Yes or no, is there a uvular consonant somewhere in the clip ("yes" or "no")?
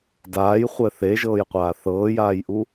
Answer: yes